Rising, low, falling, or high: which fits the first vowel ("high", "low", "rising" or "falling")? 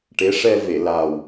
rising